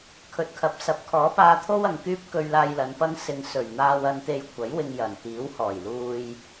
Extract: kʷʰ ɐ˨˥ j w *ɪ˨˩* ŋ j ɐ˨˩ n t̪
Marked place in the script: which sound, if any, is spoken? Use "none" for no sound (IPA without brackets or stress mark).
ɪ˧